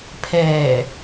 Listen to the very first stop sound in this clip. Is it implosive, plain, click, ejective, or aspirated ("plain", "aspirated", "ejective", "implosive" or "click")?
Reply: aspirated